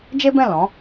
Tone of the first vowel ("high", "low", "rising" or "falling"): high